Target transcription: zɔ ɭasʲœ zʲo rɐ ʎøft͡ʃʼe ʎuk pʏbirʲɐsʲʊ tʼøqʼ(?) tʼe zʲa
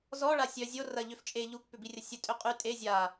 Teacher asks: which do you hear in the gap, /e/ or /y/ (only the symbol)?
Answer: y